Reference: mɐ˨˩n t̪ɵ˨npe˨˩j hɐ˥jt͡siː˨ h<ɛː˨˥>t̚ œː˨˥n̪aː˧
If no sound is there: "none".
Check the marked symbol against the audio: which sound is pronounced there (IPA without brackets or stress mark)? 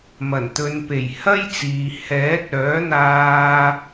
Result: ɛː˨˥